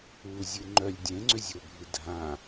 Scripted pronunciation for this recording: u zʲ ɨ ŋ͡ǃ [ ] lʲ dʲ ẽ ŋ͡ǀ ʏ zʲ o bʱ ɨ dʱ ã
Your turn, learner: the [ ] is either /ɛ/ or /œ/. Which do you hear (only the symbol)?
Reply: œ